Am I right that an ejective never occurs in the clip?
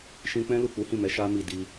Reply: yes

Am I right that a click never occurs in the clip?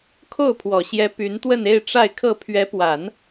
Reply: yes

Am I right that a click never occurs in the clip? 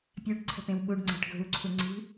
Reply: no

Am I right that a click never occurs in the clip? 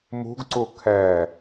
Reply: no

